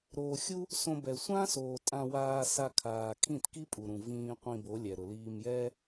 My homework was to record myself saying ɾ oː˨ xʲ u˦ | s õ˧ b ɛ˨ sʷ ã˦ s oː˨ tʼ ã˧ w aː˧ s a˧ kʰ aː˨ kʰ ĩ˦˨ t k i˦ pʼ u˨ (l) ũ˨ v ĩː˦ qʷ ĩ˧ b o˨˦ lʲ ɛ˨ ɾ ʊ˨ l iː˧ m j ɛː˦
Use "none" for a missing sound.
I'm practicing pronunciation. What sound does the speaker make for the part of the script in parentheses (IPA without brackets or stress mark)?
ɾ